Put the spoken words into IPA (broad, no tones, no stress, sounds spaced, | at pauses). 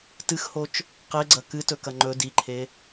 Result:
t ɨ x h o t͡ʃ | q e ɡ͡ǀ ɐ k ɨ t ɵ k ɐ ŋ͡ǃ ɵ d i ǃʰ e